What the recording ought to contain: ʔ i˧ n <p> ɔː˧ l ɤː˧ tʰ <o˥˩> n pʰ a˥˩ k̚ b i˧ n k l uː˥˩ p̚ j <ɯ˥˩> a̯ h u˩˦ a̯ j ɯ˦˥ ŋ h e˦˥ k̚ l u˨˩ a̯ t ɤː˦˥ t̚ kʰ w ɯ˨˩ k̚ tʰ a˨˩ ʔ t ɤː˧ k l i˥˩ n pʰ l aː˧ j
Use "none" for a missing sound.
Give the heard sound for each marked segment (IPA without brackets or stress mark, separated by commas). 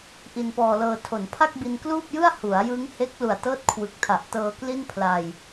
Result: p, o˩˦, ɯ˥˩